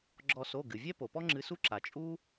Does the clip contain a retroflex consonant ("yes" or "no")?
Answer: no